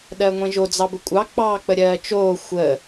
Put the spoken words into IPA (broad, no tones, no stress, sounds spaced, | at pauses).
ɗ ɜ ŋʷ ẽ ʒ o d͡z ɑ b ə kʷʼ ɑ k͡p ɑː k͡p ə ɾʲ ɜː t͡ʃ oː xʷ ə